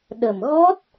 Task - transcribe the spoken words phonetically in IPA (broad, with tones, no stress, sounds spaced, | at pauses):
ɗ ə˨˩ m ɣ ɔ˦˥ t̚